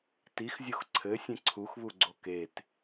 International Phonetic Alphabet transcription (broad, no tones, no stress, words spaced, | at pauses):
tixzʲox ǀʰɘ sʲẽǀʰuxβuɡ͡ǀo ket